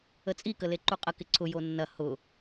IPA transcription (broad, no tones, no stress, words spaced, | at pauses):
ət͡sʼi kəleǃuqʼə kɪǀʰʊ jonːɐ hʊ